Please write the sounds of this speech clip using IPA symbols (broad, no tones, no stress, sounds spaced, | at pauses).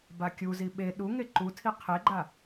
b a kʲ u z i ɓ e ɗ u ŋ e ǃ u tʰ i qʰ e ɡ͡ǃ a